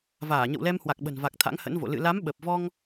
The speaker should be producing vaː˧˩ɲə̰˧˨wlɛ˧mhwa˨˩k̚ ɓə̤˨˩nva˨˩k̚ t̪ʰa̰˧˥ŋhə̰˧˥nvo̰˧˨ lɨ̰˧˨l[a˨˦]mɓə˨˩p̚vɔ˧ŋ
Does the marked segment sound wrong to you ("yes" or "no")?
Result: no